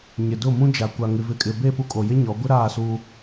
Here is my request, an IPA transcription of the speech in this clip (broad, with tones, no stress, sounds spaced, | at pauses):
ɲ ɪ˨ d ʊ˦˨ m ũ˦ d͡ʒ a˨ kʷ a˨ ŋ ɪ˨ v ɪ˨ kʼ ɪ˨ b e˦˨ p u˦ kʼ o˨ j ɪ˦ ɲ ɔ˨˦ ɡʷ ɪ˦ ɾ aː˦˨ s u˦